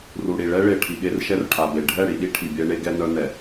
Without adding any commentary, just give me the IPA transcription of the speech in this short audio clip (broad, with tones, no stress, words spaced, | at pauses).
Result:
ru˨ɽi˨ ɭɛ˦ɭe˨ ʈʰi˨ɠe˦r ʃɛ˦rʈʰa˨be˨ ɖʱɛ˦˨ɽi˨ɗi˦ ʈʰi˨bʲɛ˦ɳe˦ ɡɛ˦nœ˦nɛ˨